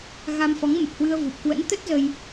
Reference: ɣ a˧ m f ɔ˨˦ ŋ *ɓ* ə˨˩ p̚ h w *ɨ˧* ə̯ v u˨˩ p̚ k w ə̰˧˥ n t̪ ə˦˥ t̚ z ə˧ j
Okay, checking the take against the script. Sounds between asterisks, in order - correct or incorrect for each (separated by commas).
incorrect, correct